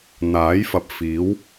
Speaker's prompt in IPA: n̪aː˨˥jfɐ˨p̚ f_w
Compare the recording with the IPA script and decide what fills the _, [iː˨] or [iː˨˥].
iː˨˥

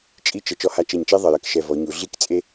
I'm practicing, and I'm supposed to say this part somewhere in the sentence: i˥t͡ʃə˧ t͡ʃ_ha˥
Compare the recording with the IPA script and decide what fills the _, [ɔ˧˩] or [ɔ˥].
ɔ˥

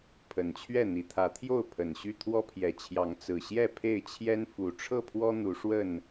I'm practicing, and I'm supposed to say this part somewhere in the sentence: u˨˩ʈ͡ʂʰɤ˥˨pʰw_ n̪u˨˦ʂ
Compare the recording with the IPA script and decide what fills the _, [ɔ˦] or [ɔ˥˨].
ɔ˦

